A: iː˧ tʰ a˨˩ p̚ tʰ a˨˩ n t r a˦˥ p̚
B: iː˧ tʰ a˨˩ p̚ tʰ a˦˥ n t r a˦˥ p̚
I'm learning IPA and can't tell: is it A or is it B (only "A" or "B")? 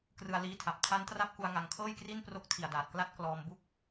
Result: B